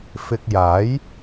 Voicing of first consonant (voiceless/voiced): voiceless